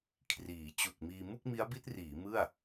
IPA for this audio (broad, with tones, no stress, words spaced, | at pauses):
kʰriː˩˦ t͡ɕu˨˩k̚miː˧ mu˥˩k̚mi˦˥a̯bi˦˥t̚riː˩˦ mɯ˥˩a̯